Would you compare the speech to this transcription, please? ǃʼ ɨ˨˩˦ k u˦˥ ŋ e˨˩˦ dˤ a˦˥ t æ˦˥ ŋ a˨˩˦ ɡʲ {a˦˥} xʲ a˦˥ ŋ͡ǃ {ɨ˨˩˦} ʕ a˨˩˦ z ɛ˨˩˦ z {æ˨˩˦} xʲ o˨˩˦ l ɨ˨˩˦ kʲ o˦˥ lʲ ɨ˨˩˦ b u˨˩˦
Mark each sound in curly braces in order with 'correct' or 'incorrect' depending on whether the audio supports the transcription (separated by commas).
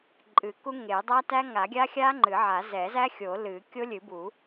correct, correct, incorrect